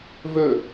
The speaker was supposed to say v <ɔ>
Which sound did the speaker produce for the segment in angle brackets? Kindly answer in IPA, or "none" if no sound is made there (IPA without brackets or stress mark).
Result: ɵ